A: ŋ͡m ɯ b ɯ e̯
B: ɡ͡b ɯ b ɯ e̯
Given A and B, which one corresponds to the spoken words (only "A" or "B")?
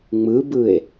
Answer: A